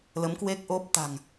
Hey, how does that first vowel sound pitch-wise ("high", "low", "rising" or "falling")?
rising